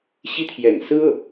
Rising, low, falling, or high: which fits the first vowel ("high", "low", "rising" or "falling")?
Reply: high